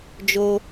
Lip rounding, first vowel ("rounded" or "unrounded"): rounded